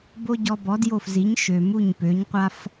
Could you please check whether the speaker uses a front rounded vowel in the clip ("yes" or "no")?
yes